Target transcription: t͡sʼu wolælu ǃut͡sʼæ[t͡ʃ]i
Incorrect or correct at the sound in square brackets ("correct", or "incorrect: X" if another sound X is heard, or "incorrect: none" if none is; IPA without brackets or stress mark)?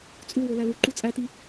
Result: incorrect: t